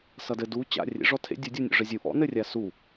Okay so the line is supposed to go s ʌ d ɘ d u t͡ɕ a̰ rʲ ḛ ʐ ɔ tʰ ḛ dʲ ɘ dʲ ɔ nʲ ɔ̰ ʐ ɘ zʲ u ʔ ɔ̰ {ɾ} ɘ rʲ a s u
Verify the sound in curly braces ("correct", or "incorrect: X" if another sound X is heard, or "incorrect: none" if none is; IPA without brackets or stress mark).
incorrect: n